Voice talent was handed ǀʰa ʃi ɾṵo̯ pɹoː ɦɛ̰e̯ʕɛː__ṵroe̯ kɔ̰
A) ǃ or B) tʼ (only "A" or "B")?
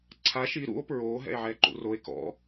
A